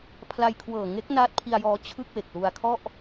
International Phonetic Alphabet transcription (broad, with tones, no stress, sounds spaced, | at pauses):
pʰ l a˧ j kʰ w ɤː˨˩ ŋ e˦˥ k̚ n aː˦˥ t̚ pʰ i˧ a̯ j ɔː˧ t͡ɕʰ ɯ˥˩ k̚ w e˨˩ k̚ l u˧ a̯ kʰ ɔ˥˩ ʔ